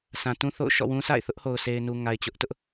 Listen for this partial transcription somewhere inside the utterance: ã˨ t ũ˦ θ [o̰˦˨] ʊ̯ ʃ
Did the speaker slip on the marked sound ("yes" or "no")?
no